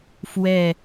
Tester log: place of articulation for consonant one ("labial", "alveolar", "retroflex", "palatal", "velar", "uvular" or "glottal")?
labial